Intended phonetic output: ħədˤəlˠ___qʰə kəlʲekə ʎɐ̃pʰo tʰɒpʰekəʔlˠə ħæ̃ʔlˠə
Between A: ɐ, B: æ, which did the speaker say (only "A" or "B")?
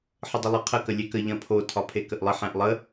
A